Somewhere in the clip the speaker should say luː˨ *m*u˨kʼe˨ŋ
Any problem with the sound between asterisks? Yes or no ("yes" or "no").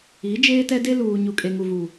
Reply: yes